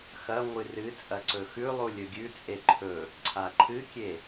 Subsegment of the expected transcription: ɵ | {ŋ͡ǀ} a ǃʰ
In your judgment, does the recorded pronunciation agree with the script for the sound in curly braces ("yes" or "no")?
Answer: no